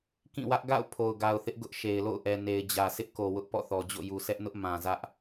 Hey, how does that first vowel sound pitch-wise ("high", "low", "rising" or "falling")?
falling